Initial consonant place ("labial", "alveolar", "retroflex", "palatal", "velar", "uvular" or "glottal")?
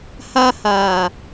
glottal